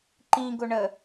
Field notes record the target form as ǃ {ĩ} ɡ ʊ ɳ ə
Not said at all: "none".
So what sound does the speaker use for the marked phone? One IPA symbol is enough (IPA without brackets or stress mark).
ĩ